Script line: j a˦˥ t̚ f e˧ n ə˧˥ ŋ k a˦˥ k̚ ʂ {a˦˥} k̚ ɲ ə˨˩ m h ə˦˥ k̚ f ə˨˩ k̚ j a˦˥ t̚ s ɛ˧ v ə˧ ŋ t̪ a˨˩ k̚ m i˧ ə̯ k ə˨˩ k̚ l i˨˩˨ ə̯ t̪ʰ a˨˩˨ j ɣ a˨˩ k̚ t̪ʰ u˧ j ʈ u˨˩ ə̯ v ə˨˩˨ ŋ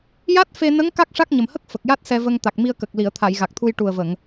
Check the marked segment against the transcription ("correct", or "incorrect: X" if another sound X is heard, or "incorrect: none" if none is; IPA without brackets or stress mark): correct